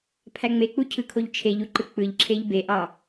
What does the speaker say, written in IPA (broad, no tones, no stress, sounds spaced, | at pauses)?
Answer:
pʰ æ ŋ͡m e k͡p u cʰ ɯ kʰ o ʎ t͡ʃʰ e ʎ u ǃ ɯ k͡p ɯ ʎ ǁʰ e ʎ b e ʔ ɑ